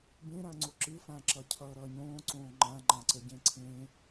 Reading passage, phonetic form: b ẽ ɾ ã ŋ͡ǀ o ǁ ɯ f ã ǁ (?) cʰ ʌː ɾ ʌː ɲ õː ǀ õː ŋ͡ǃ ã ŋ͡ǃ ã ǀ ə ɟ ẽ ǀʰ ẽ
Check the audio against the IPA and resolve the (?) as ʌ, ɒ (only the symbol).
ʌ